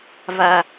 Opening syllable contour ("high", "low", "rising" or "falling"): low